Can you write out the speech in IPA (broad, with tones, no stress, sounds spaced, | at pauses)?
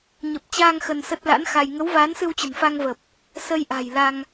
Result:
ɲ ə˨˩ p̚ t͡ɕ aː˧ ŋ x ə˧ n s ə˦˥ t̚ l a̰˧˥ n x a˧ j ŋ ə˨˦ w v aː˨˦ n s ɨ˧ w t͡ɕ ə̤˨˩ n f a˧ ŋ v ə˨˩ p̚ | s ə˧ j ʔ a̤˨˩ j l a˧ ŋ